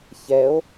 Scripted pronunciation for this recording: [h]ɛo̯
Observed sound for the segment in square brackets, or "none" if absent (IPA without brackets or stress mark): ç